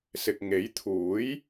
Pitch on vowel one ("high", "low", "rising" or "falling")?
low